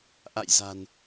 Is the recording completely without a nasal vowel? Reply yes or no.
yes